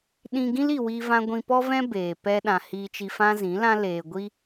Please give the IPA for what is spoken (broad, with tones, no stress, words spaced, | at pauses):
ɗĩ˧ɡĩ˦li˨ wi˦vã˦ ɡʷĩ˧pɔ˦vɛ̃˦ beː˨ pɛ˦ɗã˧ hiː˧t͡ʃi˧fã˦ zĩ˨˦lã˦ leː˨ɡʷi˦